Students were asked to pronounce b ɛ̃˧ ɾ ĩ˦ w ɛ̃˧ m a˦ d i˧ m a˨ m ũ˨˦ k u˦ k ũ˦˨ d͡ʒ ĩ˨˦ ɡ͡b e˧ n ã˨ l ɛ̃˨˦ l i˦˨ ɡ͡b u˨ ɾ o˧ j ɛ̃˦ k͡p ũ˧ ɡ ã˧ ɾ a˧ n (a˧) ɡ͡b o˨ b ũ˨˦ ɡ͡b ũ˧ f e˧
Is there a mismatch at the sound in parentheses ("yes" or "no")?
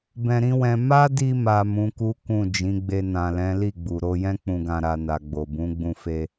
yes